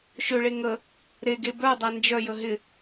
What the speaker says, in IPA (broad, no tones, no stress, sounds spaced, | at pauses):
ʃ ø ɭ e ŋ ə | ɾ e ɡ e b œ dˤ a n d͡ʒ œ j ə ɦ ɪ